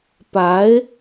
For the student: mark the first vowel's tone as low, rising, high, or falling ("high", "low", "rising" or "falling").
rising